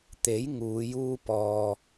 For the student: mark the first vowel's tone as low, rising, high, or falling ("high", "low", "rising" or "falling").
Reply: rising